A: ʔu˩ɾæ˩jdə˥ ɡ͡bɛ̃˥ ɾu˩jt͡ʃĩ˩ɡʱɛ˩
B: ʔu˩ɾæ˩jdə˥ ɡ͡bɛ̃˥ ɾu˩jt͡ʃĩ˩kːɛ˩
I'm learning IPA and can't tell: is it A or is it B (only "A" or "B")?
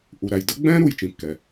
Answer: B